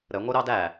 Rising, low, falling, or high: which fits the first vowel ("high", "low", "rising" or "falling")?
rising